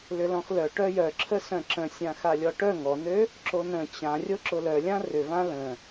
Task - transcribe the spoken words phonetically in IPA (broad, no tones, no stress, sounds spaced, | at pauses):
l ʏ l ɔ̃ x l œ ʈ œ j œ ǁʰ ə s œ̃ ǁ ə̃ sʲ ã x a lʲ ɔ ʈ œ ŋ ɔ n ø | ǁ o n ə̃ t͡ɕ ã rʲ o ǁ ʊ l œ lʲ ã r ʏ v ã l ə̃